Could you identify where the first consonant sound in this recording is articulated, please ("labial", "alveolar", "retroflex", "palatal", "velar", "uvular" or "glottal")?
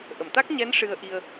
glottal